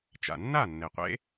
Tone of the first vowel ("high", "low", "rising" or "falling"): low